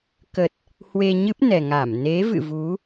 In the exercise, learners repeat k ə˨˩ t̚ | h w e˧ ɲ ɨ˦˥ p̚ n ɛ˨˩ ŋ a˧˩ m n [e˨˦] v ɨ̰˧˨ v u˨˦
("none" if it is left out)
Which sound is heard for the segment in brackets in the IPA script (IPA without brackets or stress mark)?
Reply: e˨˦